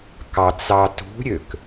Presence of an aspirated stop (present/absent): absent